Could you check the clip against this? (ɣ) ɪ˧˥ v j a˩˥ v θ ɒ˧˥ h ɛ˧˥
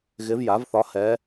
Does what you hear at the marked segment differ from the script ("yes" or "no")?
no